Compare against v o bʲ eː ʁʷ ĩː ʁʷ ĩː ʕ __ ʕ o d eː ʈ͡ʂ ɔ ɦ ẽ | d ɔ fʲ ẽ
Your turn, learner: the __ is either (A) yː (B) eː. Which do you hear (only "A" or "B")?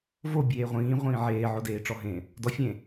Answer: B